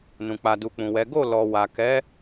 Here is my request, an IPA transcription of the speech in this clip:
n ũ˨ k͡p a˨ d u˨ k͡p ũ˨ w ɛ˨˦ ɡ o˦˨ l ɔ˨ w a˨ k ɛ˨˦

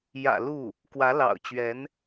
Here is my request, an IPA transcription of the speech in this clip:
j ä̰˨˩ l u˥˩ | k w ä˧˥ l ɑ̰˨˩ ʊ̯ t͡ɕ ɥ ɛ˧˥ n

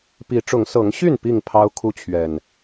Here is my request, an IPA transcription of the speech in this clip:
p i˨˦ ʈ͡ʂ ʊ˨˦ ŋ s ɤ˨˦ ŋ ɕ y˥˨ n p i˥˨ ŋ pʰ ɑ˦ ʊ̯ kʰ u˦ t͡ɕʰ ɥ ɛ˨˩ n

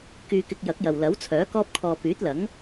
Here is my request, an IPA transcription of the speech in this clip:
k yː˧ k ɪ˧ k̚ j ɐ˨˥ k̚ j ɐ˨ w l ɐ˨˥ w t͡sʰ œː˨˥ k ɔː˥ p̚ kʰ ɔː˧ p yː˨˥ t̚ l ɐ˨˥ ŋ

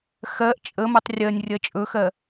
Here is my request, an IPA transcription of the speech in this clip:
x ɜ ʔ t͡ʃʼ ə m o tˤ rʲ ɜ nʲ rʲ ɜ t͡ʃʼ ɵ x ɜ

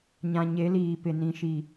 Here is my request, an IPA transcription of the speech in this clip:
ɲ ã˨ ɲ e˨˦ l iː˨ p ɪ˨ n ĩ˨ ʃ i˨

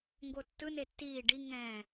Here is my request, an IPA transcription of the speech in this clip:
ŋ ɡ o tː ɯ n e tː iː ɖ i ŋ ɛ̃ː

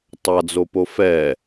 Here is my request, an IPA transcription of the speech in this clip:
tˤ a d͡z o p o f ɛ

